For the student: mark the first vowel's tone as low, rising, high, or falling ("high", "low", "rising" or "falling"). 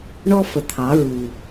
high